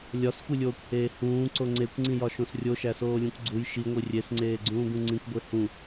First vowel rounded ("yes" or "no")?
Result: yes